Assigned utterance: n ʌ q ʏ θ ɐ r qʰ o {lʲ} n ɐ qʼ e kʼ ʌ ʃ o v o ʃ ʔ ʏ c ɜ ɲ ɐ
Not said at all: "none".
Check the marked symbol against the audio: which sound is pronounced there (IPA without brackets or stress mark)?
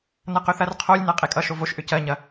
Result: lʲ